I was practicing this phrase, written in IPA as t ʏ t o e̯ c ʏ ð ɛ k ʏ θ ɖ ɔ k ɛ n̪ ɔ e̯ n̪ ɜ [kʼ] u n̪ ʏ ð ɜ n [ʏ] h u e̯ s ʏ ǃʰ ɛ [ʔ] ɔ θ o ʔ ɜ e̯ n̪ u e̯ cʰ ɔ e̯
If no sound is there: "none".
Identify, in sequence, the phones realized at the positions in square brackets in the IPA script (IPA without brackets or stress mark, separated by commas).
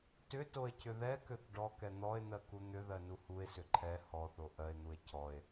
k, u, h